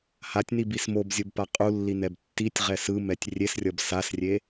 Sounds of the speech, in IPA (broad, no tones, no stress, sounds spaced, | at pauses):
h a tʲ n i b i s m o b zʲ o b p a qʼ u lː i n ɛ b tː i tʲ ʁ ɛ s ɯ m ɛ tʲ rʲ e s rʲ ʌ b s a s rʲ e